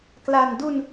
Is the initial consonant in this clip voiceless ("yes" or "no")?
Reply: yes